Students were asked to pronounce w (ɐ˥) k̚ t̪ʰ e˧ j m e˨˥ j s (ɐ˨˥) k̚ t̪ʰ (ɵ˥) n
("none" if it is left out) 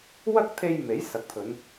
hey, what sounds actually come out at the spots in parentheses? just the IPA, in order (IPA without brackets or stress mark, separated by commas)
ɐ˥, ɐ˨˥, ɵ˨˧